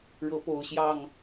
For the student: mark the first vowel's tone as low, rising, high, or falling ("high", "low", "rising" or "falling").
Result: rising